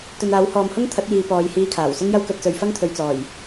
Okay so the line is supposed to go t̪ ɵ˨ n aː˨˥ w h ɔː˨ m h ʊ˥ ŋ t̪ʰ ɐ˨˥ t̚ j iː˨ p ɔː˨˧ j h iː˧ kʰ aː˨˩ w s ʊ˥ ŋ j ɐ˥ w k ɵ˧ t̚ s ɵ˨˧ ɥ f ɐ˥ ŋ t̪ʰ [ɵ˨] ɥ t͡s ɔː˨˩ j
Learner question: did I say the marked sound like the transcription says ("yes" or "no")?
yes